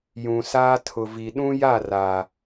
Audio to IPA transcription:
j ũ˨ s aː˦ tʰ ʊ˨ v i˨ ɗ ũ˦ j a˦˨ r a˨

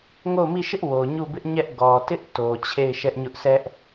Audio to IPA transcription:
ŋ o˦˨ ʊ̯ m i˦˨ ʃ ɪ˦ ʔ w o˨ ɲ u˦˨ b ɪ˦ ʔ ɲ ɛ˦ ʔ ɡ ɔ˨ t ɪ˦ ʔ t o˨ t͡ɕʰ e˦˨ ɪ̯ ʃ ɛ˦ ʔ ɲ ʊ˦ ʔ sʰ ɛ˦ ʔ

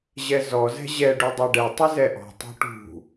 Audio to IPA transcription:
ʑ ɛ z ɔ z ɛ̤ ʑ ɛ ɖ u dˤ ɛ ɖ ɛ tˤ ɪ z ɛ ʔ ɔ̤ tˤ o̤ ʈ ṳ

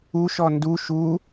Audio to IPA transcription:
u ʃ ɔ n d u ʃ u

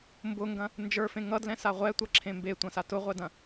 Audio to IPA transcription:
m b ʊ ŋ ɡ ɐ̃ | n d͡ʒ ə˞ f ẽ ŋ ʌ d l ɛ̃ s a ʁʷ ɛ tʷ ɐ ǁʰ ẽ m b e tʷ ɐ̃ s a t ʊ ʁʷ ɛ d ɐ̃

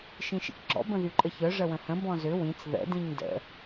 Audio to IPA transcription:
ʃ ĩ ʃ ḭ k ɡ͡ǁ ɔ̰ b ə̃ ð y ǃʼ ə ç œ ʐ ə w ə̃ h ə̃ b ɔ̃ z ʏ w ĩ t͡s ð ə̰ d ĩ ɲ d ə̰

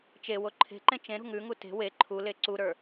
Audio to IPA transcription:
t͡ʃ e w o ǃʰ e̤ ǃ ẽ t͡ʃ ẽ ɾ ṳ ŋ ʉ ŋ u t e̤ w e ǃʰ u l e ǀ u ɾ ə˞

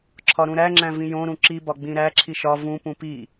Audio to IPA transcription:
ǁʰ ɒ ɾ ũ ɾ æ ŋ͡ǁ æ̃ v ĩ j õ ɾ ũ ǁ i b ɒ ɡ͡b ĩ ɾ æ ǁʰ i ʃ ɒ v ũ p ũ p i

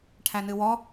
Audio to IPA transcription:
ʈʰ æ n ɨ w ɔ

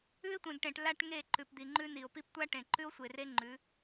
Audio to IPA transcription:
ʉ˦ e̯ tʷ ẽ˨ ɡ ʈ ẽ˨ ʈ l a˦ ʈ ŋ e˦˨ ǃ ʉ˨ p d̪ i˨ ŋ͡ǃ ʉ˦ n i˨ o̯ p i˦ p tʷ a˦ ʈ ẽ˨ ǃ ʉ˦ o̯ sʷ e˨ r e˦ ŋ͡ǃ ʉ˨˦

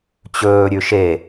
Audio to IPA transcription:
t͡ɕ ɵː ɾʲ ʉ ʃ e

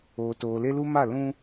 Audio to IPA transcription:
oː˨ t oː˨ l e˦ l u˦ m a˦˨ l ũ˦

